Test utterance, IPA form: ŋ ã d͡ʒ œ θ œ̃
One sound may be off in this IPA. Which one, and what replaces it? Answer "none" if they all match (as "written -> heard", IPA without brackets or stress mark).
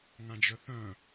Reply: none